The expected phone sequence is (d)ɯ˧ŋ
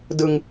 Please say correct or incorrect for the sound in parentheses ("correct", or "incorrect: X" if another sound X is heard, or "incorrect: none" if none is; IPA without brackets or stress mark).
correct